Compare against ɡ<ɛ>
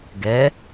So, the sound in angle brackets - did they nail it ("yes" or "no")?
yes